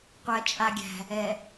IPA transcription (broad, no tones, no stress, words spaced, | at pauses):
qʷæt͡ʃʼaɡʲæ̤ | ɛ